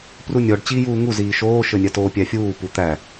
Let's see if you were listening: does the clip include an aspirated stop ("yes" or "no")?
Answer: no